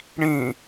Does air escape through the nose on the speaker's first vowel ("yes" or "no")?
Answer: yes